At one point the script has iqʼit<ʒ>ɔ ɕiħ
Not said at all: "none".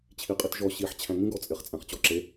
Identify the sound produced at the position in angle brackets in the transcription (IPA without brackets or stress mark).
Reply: ʒ